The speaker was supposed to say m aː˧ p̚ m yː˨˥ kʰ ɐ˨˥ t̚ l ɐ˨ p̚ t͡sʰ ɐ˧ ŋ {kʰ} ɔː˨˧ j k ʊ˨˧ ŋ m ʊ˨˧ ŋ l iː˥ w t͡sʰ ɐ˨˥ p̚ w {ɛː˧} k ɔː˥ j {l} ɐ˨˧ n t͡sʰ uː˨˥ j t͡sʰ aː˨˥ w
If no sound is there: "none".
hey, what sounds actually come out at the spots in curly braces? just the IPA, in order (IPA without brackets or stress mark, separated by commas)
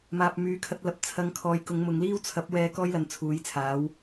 kʰ, ɛː˧, l